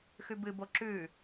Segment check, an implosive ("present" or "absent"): absent